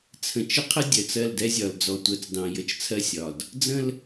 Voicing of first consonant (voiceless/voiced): voiceless